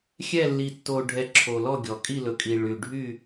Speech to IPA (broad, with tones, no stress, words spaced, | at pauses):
xʲɛ˥˨lːi˨ tːo˨ɖʱɛ˨ ǁʰo˨lɔ˥˨ɡʲɔ˨ kʼi˥˨lɵ˨kʼi˨ ɭy˨ ɖʱy˥˨